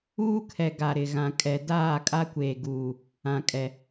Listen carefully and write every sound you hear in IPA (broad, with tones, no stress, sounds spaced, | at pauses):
uː˦ kʰ ɛ˨ ɡ a˨ ɾ ɪ˨ ɣ ã˨ kʼ ɛ˨ d aː˦˨ kʼ a˦ kʷ eː˨ ɡ uː˨ | ã˨ kʼ ɛ˨